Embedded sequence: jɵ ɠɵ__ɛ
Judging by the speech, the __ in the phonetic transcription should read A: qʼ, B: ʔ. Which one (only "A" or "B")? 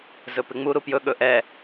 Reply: B